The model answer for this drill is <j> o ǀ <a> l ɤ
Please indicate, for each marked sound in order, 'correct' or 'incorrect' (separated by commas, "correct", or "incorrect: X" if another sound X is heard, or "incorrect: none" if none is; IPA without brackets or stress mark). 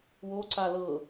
incorrect: w, correct